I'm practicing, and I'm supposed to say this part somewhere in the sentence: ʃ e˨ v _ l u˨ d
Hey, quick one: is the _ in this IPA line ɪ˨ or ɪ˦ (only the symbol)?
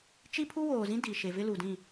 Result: ɪ˦